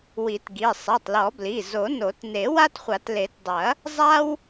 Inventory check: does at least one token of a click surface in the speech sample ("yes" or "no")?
no